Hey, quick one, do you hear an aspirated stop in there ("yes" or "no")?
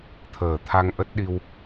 yes